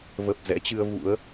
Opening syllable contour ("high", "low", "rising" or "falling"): low